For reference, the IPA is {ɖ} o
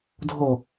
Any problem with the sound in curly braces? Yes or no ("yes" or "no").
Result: yes